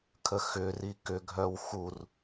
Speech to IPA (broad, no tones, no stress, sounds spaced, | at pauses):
kʰ ə x ʏ r i k ʏ ɡʱ œ w x u r